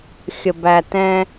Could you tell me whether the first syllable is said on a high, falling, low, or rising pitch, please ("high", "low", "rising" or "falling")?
low